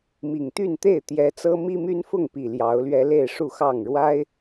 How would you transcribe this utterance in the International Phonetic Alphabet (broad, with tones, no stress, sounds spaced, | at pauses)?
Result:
m i˨˩ ŋ t̪ y˥˨ n t̪ e˥˨ ɪ̯ t̪ j ɛ˨˦ t͡s ɤ˦ m i˦ m y˦ n f ʊ˥˨ ŋ p i˨˩ l j ɑ˨˦ ʊ̯ l ɥ ɛ˦ l e˥˨ ɪ̯ ʂ u˥˨ x ɑ˥˨ ŋ ɻ w a˦ ɪ̯